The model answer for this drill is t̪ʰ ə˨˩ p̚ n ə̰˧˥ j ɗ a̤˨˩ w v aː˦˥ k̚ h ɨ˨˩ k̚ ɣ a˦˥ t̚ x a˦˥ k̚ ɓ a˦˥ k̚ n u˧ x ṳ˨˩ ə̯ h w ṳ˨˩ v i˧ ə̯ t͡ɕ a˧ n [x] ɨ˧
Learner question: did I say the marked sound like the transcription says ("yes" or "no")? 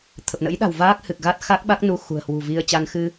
yes